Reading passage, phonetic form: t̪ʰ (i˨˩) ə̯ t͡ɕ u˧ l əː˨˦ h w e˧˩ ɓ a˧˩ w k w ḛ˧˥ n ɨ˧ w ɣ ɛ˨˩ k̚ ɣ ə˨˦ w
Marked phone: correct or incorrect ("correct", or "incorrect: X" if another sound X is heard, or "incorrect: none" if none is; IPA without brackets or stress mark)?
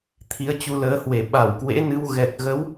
incorrect: i˨˦